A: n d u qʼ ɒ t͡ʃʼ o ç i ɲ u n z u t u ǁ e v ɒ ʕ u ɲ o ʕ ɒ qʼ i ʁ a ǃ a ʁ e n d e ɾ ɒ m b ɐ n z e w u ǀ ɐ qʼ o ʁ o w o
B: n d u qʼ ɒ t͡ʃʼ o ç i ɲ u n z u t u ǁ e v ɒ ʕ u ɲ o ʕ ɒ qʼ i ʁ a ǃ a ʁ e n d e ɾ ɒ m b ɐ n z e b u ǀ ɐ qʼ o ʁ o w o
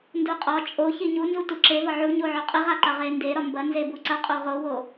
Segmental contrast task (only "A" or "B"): B